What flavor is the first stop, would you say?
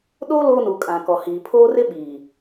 implosive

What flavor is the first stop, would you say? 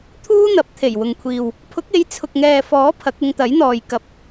aspirated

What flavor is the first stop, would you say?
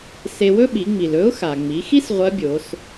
implosive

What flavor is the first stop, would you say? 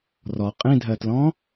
ejective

